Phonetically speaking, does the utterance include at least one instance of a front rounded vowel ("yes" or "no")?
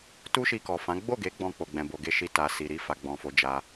no